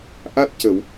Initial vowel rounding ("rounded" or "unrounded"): unrounded